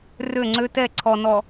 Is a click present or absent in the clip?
present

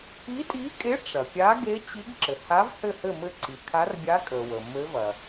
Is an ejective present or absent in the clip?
present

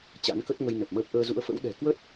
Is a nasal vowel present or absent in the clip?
absent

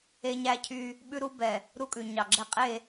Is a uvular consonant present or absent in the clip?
present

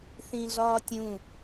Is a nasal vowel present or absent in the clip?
present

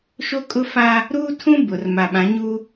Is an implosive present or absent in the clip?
present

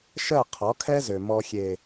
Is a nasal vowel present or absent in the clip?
absent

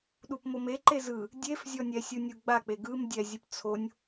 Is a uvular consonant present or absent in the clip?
absent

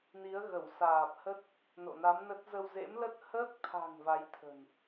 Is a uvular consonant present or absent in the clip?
absent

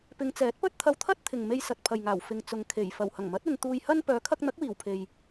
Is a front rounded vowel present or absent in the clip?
present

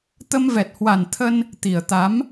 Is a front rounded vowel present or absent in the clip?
absent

